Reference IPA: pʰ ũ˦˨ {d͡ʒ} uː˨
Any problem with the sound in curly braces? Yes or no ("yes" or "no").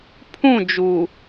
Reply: no